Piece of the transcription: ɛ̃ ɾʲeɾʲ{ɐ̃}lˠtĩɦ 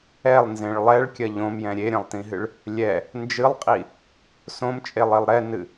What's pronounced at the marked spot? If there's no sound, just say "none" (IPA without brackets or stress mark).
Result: ɐ̃